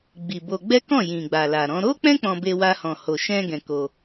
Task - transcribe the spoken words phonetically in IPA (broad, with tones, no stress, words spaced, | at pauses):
ɡ͡bi˨bo˧ ɡ͡bɛ˦kɔ̃˦˨ jĩ˨ɡ͡ba˨la˨ɾɔ̃˨˦ ɾo˦k͡pɛ̃˦ k͡pɔ̃˧be˧wa˧hɔ̃˨ ho˨ ʃɛ̃˧ ɡɛ̃˧ko˧